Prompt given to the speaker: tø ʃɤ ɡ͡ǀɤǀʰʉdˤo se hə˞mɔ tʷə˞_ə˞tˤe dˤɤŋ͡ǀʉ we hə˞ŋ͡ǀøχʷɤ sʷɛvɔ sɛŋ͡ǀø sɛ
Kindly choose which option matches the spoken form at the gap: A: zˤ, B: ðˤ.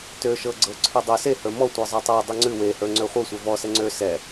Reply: A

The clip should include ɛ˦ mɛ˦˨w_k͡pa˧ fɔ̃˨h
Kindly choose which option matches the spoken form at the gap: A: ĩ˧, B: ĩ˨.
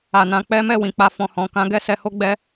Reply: B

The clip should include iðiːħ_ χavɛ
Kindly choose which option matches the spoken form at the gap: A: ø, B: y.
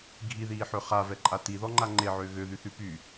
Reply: A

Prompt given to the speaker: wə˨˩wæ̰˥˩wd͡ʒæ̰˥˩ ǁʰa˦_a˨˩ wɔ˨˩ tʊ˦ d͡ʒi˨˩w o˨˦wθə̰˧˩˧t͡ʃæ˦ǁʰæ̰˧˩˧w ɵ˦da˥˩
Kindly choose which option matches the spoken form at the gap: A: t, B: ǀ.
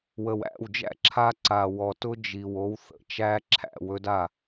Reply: B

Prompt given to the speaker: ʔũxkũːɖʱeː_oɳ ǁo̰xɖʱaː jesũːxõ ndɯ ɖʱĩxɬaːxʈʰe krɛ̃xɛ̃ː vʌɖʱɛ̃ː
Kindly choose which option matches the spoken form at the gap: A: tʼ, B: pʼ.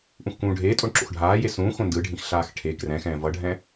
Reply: A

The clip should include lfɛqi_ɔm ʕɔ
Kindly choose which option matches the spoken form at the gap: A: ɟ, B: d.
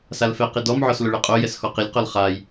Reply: B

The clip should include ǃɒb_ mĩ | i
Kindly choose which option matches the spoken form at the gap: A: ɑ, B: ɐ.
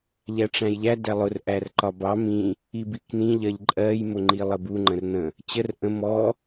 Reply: A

